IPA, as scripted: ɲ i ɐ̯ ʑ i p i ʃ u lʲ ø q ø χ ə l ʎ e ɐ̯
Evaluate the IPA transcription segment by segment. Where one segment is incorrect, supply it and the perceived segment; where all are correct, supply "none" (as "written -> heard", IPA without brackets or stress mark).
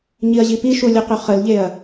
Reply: none